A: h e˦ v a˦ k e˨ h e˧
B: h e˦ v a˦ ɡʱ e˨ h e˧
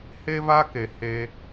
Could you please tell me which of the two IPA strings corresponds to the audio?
A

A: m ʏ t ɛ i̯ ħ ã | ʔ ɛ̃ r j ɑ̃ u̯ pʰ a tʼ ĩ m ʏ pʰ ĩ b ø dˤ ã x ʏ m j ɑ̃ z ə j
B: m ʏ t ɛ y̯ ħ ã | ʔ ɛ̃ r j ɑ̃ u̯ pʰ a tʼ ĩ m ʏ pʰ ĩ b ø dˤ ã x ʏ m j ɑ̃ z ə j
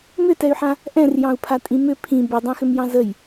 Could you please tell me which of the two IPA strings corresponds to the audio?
B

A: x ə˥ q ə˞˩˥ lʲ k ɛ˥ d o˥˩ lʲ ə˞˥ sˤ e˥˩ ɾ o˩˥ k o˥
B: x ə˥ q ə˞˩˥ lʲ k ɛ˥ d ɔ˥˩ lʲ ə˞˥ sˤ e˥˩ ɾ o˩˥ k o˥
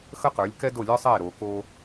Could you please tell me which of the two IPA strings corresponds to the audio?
A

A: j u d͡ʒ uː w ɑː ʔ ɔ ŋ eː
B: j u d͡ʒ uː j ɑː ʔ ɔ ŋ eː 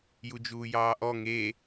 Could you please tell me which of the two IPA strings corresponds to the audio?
B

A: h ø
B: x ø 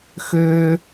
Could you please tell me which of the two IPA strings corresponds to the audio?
B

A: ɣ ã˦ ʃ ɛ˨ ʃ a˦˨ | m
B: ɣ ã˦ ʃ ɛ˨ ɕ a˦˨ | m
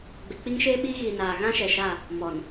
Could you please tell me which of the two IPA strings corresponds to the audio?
A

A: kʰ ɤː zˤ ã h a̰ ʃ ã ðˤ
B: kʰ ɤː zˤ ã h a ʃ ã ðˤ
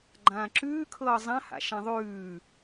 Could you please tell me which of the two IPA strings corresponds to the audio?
A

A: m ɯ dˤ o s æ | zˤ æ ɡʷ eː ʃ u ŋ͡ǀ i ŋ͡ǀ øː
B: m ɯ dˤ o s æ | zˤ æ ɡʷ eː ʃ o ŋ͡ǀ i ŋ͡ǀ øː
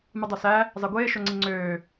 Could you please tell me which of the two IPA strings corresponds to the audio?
B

